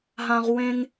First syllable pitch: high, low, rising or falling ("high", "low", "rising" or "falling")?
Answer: high